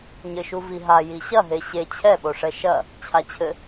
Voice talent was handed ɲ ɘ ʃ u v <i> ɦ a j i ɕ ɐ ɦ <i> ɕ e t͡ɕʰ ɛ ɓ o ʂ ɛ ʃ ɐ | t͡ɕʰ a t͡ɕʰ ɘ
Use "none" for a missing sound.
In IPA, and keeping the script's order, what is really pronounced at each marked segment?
i, e

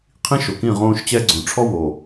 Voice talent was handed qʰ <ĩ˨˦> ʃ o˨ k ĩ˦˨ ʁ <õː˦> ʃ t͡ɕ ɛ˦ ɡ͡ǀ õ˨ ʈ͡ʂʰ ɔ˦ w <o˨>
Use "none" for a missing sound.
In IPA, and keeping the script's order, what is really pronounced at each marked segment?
ĩ˦, õː˦, o˨

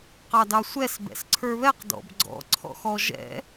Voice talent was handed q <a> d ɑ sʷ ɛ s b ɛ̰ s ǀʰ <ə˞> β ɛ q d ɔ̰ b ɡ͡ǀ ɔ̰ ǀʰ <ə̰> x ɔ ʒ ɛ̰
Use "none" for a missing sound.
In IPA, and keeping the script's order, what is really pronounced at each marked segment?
ɑ, ə˞, ɔ̰

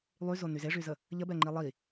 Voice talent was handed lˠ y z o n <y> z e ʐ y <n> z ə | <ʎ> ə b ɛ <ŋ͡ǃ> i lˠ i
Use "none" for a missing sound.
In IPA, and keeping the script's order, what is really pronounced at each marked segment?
y, none, ʎ, ŋ͡ǃ

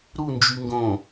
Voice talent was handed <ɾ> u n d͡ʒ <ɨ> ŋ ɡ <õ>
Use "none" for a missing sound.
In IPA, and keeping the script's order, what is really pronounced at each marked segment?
ɾ, y, õ

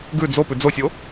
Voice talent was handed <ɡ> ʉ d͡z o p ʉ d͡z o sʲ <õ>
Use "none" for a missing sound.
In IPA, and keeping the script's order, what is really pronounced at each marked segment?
ɡ, o

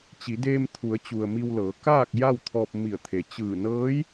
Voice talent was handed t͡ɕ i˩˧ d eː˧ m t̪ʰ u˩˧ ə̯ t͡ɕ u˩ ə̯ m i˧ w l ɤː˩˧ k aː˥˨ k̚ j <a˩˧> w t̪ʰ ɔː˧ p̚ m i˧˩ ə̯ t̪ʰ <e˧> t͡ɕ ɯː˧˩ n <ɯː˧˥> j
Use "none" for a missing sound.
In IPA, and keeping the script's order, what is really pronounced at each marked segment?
a˥˨, e˩, ɤː˧˥

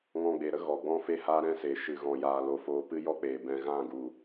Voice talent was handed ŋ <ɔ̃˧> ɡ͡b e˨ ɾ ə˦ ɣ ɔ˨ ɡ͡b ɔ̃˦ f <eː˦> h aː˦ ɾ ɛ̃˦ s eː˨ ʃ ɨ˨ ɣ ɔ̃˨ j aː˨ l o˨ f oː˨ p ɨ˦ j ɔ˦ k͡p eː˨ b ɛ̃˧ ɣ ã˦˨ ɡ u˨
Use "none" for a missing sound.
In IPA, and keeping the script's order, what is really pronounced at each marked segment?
ɔ̃˧, e˦

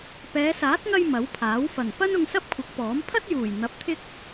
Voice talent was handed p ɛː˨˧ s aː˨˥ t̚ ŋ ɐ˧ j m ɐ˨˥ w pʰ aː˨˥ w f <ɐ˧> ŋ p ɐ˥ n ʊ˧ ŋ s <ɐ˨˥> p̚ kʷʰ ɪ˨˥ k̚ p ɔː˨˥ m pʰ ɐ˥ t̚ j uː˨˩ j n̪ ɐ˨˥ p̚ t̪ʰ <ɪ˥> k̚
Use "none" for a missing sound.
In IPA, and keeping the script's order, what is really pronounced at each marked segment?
ɐ˨˩, ɐ˥, ɪ˥

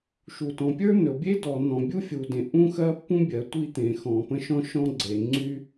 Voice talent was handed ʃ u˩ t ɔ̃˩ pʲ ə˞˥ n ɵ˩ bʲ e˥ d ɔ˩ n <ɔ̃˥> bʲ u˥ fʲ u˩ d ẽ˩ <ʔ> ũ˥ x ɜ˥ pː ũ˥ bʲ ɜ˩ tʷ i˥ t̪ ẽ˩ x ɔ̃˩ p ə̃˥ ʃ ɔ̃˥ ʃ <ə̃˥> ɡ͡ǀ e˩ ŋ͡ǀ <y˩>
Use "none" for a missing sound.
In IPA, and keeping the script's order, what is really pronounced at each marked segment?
ɔ̃˩, ʔ, ɔ̃˥, y˥

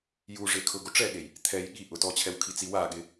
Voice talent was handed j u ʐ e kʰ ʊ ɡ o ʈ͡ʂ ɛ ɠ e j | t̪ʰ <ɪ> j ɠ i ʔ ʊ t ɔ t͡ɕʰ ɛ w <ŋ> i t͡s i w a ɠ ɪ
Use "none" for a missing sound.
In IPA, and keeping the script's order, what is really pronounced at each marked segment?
ɛ, kʰ

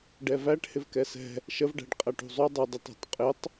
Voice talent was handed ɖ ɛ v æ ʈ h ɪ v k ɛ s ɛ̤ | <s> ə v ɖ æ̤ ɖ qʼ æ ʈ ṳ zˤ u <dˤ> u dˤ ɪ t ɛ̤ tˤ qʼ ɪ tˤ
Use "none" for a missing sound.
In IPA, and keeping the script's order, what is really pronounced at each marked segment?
ʃ, dˤ

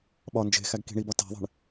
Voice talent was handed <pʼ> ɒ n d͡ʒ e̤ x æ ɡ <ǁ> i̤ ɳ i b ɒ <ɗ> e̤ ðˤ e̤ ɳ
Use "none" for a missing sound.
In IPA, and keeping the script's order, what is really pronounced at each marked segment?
ɓ, k, t

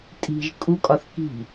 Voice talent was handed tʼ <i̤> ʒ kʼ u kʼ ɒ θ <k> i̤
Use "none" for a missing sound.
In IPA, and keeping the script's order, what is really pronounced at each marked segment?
i̤, k

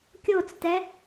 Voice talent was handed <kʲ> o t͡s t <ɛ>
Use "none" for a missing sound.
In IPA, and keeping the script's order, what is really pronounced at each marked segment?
kʲ, ɛ

